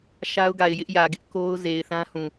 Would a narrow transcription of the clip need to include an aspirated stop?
no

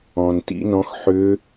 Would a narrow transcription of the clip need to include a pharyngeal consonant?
yes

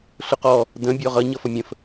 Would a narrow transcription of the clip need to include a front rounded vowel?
no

